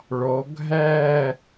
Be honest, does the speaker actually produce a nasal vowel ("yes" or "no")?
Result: no